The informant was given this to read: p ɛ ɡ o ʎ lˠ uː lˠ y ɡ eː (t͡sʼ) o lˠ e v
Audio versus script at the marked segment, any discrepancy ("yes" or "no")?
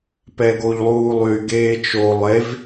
yes